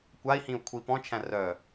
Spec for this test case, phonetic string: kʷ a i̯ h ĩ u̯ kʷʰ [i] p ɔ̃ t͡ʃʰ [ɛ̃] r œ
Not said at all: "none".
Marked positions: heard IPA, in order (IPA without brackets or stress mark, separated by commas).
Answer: i, æ̃